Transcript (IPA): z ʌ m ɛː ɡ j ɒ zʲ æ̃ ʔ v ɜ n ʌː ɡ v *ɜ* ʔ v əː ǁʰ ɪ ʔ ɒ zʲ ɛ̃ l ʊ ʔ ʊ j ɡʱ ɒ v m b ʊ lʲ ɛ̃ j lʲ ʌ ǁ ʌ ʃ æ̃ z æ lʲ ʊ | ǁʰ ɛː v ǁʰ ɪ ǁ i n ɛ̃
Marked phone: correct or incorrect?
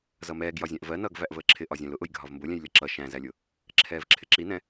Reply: incorrect